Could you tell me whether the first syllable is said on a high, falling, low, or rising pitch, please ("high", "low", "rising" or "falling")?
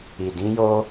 low